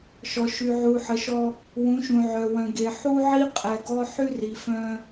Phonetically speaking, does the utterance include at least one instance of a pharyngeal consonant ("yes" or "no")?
yes